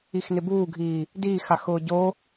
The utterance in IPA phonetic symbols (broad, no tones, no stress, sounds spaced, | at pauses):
i x n ɪ b uː ɡʱ iː | d iː x a x ʊː ɟ o